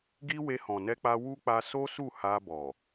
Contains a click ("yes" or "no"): no